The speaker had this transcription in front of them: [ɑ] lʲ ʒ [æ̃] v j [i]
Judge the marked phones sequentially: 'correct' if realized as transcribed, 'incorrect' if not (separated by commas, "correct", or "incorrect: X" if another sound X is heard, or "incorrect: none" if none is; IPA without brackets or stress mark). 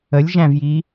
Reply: incorrect: ə, correct, correct